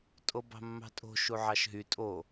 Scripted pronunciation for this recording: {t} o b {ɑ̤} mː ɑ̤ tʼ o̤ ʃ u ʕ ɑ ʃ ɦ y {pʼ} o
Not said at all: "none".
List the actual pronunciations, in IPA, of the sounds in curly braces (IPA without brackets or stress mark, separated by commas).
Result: tʼ, ɑ̤, tʼ